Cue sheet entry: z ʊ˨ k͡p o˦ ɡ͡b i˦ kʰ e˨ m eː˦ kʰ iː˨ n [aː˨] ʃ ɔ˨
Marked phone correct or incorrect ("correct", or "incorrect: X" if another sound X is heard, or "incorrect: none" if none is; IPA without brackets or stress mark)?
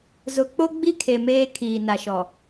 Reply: incorrect: a˨